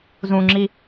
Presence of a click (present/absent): present